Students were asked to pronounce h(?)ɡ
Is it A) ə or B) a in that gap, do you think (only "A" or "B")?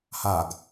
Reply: B